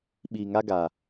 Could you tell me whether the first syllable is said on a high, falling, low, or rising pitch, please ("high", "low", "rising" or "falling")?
low